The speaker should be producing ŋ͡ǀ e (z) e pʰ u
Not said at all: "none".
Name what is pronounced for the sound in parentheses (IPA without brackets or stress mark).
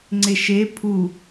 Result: ʃ